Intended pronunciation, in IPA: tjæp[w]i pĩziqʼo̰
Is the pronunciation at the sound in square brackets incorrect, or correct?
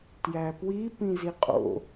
correct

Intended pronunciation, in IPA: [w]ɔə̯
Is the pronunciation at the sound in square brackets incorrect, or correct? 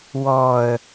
correct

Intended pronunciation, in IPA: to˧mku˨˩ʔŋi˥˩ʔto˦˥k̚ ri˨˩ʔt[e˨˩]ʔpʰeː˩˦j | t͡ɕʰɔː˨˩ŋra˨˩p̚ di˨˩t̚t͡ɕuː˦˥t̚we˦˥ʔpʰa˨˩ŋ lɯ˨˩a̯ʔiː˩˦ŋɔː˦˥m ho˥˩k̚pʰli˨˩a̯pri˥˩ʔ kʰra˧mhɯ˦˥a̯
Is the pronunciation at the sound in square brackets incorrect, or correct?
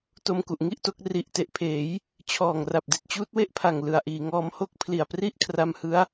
correct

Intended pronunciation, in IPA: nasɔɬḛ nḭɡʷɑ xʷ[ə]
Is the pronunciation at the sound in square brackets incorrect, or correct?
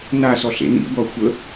correct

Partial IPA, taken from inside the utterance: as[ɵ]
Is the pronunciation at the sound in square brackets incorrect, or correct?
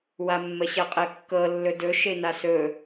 correct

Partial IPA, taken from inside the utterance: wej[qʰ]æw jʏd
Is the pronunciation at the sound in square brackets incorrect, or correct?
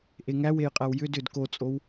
incorrect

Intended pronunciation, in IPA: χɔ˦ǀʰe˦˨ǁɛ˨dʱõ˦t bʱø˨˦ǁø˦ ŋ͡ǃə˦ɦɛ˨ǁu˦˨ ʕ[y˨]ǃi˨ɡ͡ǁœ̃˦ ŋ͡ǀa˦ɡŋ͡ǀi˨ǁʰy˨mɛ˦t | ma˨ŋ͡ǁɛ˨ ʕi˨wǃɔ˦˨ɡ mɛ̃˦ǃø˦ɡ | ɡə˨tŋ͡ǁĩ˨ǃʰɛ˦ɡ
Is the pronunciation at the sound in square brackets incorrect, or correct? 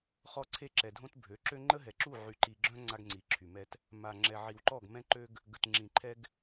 correct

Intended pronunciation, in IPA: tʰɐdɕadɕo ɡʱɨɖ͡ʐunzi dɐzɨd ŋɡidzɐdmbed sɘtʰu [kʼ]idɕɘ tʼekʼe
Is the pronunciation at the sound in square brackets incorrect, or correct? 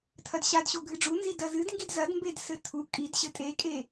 correct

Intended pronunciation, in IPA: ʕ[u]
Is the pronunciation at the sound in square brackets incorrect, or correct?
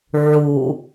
correct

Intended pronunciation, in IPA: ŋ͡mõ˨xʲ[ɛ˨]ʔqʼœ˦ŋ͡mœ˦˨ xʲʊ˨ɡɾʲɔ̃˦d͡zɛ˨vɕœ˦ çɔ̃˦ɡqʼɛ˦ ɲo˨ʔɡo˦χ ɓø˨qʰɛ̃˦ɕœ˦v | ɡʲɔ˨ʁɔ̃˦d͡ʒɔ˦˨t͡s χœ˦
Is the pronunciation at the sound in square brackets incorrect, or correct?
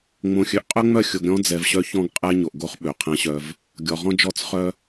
incorrect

